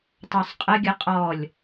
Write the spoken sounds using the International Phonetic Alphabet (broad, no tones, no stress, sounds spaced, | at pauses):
tˤ œ sˤ qʼ ə ɡʲ ə qʼ ɔ lʲ